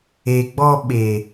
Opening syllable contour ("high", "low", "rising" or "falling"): low